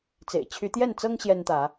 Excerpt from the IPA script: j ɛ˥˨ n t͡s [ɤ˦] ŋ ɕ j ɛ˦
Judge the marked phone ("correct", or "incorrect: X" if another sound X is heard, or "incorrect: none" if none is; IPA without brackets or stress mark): correct